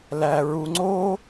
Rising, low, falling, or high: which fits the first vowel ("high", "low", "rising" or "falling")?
low